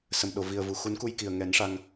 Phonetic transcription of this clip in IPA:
s ə˨˩ m ɗ o˨˩˨ v i˨˩ ə̯ v u˨˩ x u˨˩˦ n k u˧ j k i˨˩ ə̯ ŋ ɛ˨˩˦ n ʂ a˧ ŋ

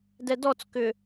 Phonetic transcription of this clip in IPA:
d ɛ d ɔ t͡s k ʏ

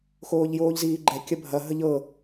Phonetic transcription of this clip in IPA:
x oː ʎ j oː ʎ z iː ɡ͡ǃ ɛ kʲ ɐ bʱ ɐ ɦ ə ʎ ɤ

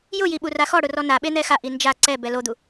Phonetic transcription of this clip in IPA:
j ʊ j i ɓ u r a x ɔ ɽ ʊ r ɔ n a ɓ e n̪ ɛ x a ʔ i n d͡ʒ a ǀ ɛ b ɛ l o d̪ u

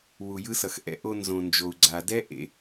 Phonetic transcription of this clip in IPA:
w u˩ j ɯ˧ s ʌ˩ x ʔ ɛ̰˧ ʔ o˧ n z õ˩ n d͡ʒ o˩ u̯ ɡ͡ǀ a˩ d ɛ˥ ʔ ḛ˧

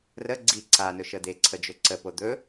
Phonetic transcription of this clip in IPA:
r ə ɡ͡ǀ i ǀ a n ɵ ʃ ə d̪ e ǀʰ ə d͡ʒ ɵ ǀ ə p o d̪ ɵ

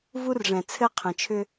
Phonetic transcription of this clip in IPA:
v u˦ r ʐ ɛ̃˨ t͡sʰ ɘ˦ qʰ ə̃˨ t͡ʃʰ ʏ˦

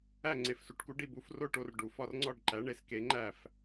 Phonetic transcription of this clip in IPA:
æ˥˨ ŋ͡ǀ e˨ f s u˨˥ ʈ k u˨˥ ɖ i˥˨ b u˨˥ f r o˥˨ ʈ o˥˨ r ɖ u˨ f ɒ˥˨ r ŋ͡ǀ ɒ˥˨ ɖ ǃ æ˨˥ ɳ e˨˥ s k e˨˥ ŋ͡ǃ æ˥˨ f

